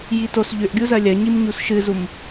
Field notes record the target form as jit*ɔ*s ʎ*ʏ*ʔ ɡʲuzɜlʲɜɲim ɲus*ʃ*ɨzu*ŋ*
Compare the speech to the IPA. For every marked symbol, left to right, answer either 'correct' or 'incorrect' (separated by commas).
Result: incorrect, correct, correct, incorrect